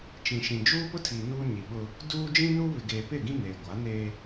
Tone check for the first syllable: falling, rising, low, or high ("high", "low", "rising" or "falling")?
low